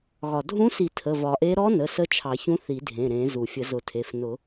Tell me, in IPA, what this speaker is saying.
ɣ ɒ˩ dʱ ũ˧˥ s i˨˩˦ tʰ ə˩˧˩ v ɒ˨˩˦ ʔ e˧˥ ɾ ɔ˧˥ n ə˩˧˩ s ə˧˥ t͡ʃʰ ɑ˨˩˦ ç ũ˧˥ θ i˨˩˦ dʱ ẽ˩˧˩ ɾ ẽ˨˩˦ z u˩ fʲ ə˨˩˦ z ʊ˨˩˦ tʰ e˩˧˩ f n ʊ˨˩˦

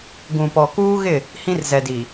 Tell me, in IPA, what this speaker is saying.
ɡ ũ˨ p ɔ˨ k uː˦ ɣ ɪ˦˨ | h ĩ˦ r z ɛ˨ d i˨

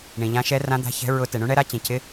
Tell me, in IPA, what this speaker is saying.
ɳ ĩ˨ ʎ ã˧˥ ʃ ɛ˧˥ r ã˧˥ d̪ a̤˧˥ ç ɛ̤˧˥ ɹ ʊ˧˥ t ɛ˨ ɳ ũ˧˥ ɳ ɛ˧˥ ɾ a˧˥ t͡ɕ ĩ˨ cʰ ɪ˧˥

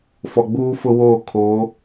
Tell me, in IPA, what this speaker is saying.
f ɔ˨ ɡ͡b uː˦ f ʊ˦ w oː˦˨ kʰ oː˨˦

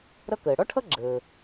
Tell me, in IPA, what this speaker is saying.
ɾ ʌ˥ k əː˩ ɽ ɔ˥ ʈʰ ʌ˥ ɡ͡ǁ əː˩

